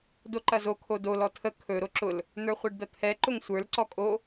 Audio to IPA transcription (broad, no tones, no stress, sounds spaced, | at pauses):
d o ǃ ɐ z o kʰ o d o l ɔ tʰ ə kʰ ɵ ɾ o ǁ ʊ l | n̪ ə˞ χʷ ɛ ɖ d̪ ɐ t̪ʰ ɛ ǃ ʊ ŋ sʷ ə˞ l ǀ ɔ kʼ o